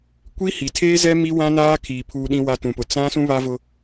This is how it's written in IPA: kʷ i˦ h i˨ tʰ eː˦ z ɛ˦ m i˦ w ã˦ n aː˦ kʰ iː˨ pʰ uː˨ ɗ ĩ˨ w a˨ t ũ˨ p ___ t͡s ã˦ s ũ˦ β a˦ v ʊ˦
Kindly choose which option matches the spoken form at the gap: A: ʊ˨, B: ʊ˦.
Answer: A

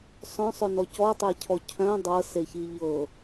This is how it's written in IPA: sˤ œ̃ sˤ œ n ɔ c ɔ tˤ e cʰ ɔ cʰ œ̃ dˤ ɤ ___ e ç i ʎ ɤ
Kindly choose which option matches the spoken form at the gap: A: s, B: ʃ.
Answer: A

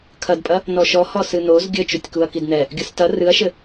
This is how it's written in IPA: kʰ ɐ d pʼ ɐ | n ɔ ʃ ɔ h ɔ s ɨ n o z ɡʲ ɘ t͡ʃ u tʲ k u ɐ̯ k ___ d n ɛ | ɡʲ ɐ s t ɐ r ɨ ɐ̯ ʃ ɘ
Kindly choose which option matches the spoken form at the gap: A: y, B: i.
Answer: B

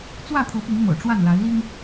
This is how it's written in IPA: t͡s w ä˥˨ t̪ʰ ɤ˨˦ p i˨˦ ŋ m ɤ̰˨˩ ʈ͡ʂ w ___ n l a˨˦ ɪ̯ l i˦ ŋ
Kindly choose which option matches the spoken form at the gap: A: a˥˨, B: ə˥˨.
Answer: A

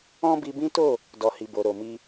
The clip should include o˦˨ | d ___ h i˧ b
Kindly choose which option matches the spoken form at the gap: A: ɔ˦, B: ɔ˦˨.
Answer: A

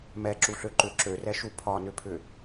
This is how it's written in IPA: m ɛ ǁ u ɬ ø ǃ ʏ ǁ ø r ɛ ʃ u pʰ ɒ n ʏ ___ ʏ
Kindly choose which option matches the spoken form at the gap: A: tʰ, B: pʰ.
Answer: B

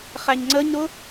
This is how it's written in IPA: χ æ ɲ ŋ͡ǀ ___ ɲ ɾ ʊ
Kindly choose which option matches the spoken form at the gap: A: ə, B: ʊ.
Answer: A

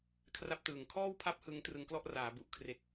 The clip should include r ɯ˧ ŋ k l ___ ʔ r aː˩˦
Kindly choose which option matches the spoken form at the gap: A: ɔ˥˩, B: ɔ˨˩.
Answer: A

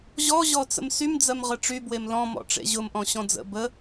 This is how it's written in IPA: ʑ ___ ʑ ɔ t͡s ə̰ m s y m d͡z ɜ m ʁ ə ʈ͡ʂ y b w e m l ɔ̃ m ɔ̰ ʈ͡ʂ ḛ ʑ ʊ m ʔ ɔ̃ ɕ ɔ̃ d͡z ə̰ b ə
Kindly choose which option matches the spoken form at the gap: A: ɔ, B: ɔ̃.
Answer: A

